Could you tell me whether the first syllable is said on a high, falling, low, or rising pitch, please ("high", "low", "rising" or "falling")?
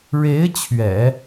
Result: rising